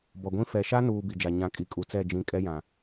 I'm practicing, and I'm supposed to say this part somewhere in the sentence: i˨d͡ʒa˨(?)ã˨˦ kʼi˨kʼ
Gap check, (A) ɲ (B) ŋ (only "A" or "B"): A